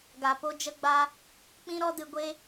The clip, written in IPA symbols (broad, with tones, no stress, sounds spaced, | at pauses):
ɡ a˨ p o˧ d͡ʒ ə˧ ɡ͡b a˧ | k͡p ĩ˦ ɾ ɔ˦ d ɨ˧ ɡʷ e˦